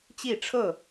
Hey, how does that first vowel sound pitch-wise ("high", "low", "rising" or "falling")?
falling